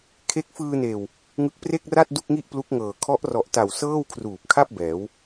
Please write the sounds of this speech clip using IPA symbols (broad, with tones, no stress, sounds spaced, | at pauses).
kʰ e˦˥ k̚ f ɯː˧ n eː˨˩ w | ŋ ɯ˦˥ k̚ p r e˥˩ k̚ r a˥˩ t̚ d u˥˩ k̚ ŋ i˥˩ ʔ p l u˦˥ k̚ ŋ ɤː˨˩ kʰ ɔ˦˥ ʔ r ɔ˨˩ ʔ t a˨˩ w s ɤː˥˩ w kʰ r uː˨˩ p̚ kʰ a˥˩ p̚ b ɛː˩˦ w